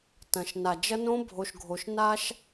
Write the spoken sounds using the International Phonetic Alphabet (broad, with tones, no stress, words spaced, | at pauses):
tɐ̃˨ʃna˨d͡ʒɐ˦ nõ˦ bʱo˨ʃɡʱo˨ʃ na˦ʃ